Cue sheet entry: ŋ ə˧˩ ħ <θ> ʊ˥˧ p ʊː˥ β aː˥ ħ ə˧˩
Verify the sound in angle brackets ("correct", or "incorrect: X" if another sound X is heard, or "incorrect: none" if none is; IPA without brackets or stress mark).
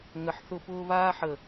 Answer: correct